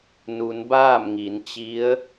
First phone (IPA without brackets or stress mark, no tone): n